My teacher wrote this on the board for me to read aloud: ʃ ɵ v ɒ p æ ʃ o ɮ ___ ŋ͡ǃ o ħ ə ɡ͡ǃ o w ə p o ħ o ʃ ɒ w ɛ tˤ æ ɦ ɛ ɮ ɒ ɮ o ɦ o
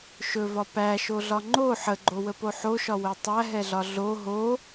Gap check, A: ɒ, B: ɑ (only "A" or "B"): A